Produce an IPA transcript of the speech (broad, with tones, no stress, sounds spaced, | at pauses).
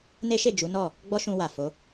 n e˦ ʃ e˦˨ d͡ʒ u˨˦ n ɔ˦˨ | ɡ͡b ɔ˦ ʃ ũ˧ w a˨ f o˨˦